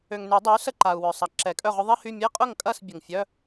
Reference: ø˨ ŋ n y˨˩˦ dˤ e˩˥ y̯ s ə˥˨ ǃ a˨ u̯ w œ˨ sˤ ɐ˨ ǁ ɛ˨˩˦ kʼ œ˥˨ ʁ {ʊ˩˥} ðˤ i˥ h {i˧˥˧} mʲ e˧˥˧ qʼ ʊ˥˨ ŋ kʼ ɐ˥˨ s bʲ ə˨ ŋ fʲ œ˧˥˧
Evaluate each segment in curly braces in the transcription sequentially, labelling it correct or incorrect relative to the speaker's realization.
incorrect: ʊ˥, incorrect: y˧˥˧

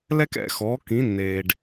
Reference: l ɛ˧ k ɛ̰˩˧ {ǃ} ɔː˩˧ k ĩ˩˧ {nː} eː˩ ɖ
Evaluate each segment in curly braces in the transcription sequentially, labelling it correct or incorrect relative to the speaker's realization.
incorrect: x, correct

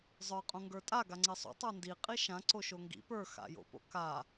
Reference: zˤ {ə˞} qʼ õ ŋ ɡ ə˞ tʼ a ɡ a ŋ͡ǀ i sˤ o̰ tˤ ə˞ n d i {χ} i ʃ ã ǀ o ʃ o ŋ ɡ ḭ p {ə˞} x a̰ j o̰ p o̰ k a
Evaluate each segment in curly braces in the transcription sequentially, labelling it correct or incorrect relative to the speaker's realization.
correct, incorrect: qʼ, correct

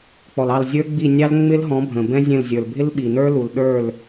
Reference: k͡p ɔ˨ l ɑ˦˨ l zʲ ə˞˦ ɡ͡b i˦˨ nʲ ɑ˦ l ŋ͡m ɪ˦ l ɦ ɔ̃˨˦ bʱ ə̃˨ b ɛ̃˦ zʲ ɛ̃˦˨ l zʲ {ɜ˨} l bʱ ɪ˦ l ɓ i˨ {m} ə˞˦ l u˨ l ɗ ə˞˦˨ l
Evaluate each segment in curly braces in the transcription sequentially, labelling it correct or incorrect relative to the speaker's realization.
incorrect: ə˞˨, incorrect: n

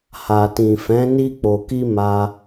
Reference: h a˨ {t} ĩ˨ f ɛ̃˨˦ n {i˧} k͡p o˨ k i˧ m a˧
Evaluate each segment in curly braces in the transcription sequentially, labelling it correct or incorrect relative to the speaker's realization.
correct, correct

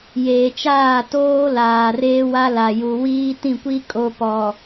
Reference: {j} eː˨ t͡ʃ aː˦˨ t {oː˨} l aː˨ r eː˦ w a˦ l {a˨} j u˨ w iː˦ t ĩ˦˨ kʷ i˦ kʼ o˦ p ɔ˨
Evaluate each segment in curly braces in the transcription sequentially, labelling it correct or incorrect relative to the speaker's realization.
correct, incorrect: oː˦, correct

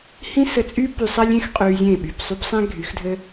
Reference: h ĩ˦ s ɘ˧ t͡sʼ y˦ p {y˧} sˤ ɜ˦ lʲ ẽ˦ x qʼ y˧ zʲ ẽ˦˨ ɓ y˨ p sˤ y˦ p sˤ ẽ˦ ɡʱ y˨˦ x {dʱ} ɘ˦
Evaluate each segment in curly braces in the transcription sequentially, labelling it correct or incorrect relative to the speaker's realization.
correct, correct

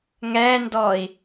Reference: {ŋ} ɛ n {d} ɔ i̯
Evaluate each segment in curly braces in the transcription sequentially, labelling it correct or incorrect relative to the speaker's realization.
correct, correct

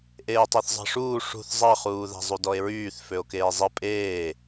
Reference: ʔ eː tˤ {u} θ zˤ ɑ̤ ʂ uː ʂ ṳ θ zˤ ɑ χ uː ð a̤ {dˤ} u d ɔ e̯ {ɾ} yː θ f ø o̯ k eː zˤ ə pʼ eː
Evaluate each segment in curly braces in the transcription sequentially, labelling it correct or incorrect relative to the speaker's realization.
incorrect: ø, incorrect: zˤ, incorrect: ɹ

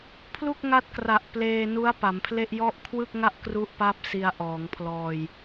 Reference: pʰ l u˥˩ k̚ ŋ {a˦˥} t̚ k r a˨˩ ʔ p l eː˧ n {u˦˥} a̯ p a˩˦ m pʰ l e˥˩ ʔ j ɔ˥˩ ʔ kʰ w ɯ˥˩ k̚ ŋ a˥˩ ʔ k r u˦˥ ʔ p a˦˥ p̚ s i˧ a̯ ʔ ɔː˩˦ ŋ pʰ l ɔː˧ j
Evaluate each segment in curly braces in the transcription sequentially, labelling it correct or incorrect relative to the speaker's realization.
correct, correct

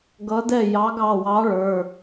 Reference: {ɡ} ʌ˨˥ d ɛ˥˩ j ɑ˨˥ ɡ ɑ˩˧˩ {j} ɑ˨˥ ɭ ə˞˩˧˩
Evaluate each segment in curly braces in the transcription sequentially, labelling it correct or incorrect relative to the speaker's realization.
correct, incorrect: w

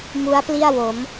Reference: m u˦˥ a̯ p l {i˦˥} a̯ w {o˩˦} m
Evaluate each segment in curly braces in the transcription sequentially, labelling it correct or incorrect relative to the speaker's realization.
incorrect: i˥˩, correct

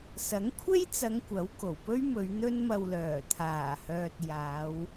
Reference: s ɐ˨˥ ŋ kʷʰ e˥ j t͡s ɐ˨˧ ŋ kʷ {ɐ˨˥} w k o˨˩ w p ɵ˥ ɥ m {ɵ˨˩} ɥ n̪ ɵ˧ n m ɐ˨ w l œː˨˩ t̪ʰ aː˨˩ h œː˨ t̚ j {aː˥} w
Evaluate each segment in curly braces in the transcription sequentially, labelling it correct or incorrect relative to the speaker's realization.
correct, incorrect: ɵ˨˧, incorrect: aː˨˧

